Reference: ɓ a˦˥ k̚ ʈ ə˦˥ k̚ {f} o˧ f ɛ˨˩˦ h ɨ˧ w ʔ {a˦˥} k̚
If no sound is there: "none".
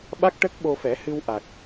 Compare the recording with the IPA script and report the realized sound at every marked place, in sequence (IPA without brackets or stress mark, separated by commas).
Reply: ɓ, a˨˩